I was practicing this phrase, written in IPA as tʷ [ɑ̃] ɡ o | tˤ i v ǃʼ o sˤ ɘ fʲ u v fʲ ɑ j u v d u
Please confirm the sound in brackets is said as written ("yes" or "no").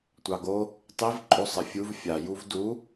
no